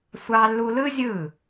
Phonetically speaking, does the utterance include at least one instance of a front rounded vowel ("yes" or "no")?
no